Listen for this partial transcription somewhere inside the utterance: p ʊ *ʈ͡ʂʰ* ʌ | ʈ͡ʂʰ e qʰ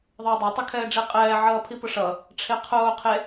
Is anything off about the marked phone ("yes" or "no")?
yes